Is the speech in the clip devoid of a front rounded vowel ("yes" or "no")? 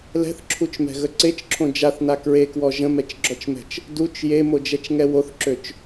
no